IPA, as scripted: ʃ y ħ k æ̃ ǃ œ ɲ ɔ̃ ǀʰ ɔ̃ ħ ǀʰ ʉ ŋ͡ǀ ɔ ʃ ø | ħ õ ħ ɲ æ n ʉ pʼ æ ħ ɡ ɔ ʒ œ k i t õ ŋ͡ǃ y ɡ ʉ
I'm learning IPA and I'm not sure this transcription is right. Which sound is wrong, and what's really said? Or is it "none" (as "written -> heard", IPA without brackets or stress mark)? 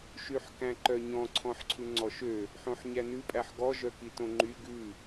none